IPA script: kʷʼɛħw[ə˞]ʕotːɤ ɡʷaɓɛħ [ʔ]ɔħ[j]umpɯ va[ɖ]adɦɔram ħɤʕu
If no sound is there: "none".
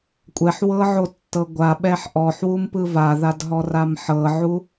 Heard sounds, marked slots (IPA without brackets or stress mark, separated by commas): ɤ, ʔ, w, ð